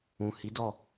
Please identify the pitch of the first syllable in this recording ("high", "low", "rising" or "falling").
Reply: low